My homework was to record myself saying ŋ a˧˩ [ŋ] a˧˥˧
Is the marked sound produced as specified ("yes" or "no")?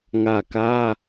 no